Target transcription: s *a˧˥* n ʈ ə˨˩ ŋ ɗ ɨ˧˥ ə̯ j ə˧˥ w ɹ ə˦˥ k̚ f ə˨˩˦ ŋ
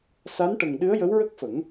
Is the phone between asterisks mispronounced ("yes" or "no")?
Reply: no